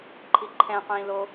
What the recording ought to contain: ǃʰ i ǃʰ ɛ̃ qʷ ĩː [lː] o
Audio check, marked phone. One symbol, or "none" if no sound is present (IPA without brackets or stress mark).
l